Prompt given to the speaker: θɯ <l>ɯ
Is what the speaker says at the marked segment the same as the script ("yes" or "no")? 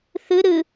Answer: no